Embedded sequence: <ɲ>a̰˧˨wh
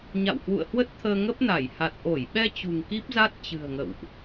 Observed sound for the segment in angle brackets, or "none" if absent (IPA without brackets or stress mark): ɲ